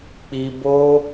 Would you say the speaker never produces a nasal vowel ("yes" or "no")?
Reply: yes